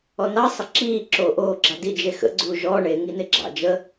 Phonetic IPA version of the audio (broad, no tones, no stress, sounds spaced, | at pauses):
ɔ n ɑ sˤ ə ǁ iː ǁ oː ʔ oː ɡ͡ǁ ɑ d i d͡ʒ e x ə̰ ɡ͡ǀ uː ʒ ɔː ɳ e ŋ i n e ɡ͡ǁ ɑ̰ d͡ʒ ə